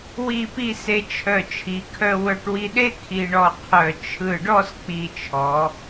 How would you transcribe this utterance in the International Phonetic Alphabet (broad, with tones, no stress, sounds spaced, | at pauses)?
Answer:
w i˥˧ p i˥˧ s e˧ t͡ʃʰ œ˧˩ t͡ʃʰ i˩˧ kʰ œ˧ w œ˧ ʈ w i˧ ɗ e˥ kʰ i˧ ɳ ɔ˧ qʰ œ˧˩ t͡ʃʰ ɯ˧˩ ɖ ɔ˥˧ s k͡p i˧˩ t͡ʃʰ ɔ˩˧